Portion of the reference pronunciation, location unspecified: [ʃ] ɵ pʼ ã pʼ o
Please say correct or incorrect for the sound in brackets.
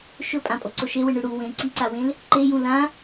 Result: correct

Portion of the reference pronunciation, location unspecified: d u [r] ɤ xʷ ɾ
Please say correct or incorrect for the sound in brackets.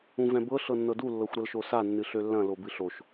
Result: incorrect: lː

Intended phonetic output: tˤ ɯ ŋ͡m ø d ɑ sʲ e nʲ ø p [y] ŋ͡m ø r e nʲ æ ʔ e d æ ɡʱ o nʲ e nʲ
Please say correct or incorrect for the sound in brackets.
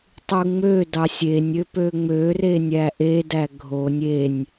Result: incorrect: ø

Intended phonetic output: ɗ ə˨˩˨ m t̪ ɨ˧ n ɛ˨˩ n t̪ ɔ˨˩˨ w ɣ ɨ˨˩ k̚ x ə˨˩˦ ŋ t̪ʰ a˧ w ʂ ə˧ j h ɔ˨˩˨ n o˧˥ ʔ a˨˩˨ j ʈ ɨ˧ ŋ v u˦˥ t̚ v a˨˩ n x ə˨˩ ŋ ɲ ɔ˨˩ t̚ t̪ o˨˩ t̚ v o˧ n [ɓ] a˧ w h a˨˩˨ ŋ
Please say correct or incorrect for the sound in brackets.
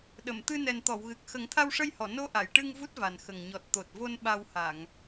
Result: correct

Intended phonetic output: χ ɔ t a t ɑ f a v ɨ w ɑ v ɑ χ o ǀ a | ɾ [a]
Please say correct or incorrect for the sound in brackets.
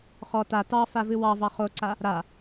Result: correct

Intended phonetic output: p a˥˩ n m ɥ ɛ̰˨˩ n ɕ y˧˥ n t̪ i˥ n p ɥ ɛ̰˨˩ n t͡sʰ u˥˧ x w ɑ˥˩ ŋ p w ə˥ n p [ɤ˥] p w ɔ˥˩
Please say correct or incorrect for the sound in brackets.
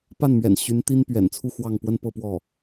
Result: incorrect: ɤ˥˧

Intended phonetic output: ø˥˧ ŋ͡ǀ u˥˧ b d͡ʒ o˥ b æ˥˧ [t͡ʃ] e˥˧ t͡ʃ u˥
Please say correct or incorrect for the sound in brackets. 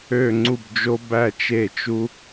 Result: correct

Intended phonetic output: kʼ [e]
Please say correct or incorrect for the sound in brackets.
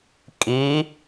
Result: incorrect: i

